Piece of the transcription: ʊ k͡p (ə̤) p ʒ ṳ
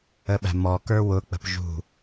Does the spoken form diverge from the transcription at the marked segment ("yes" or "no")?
no